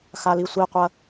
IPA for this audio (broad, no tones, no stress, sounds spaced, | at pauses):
x a l i sʷ i qʷ ɐ